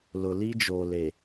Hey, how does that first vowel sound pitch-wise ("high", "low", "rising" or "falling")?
low